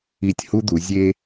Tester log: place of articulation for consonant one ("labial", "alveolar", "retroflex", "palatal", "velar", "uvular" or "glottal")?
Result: alveolar